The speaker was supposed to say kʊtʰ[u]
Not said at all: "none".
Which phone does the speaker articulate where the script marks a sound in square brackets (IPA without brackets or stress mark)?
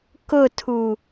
u